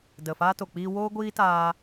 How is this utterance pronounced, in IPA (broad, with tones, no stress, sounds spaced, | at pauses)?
d ə˨ f a˧ t o˨ k͡p iː˧ w oː˦ ɡʷ iː˦ t aː˧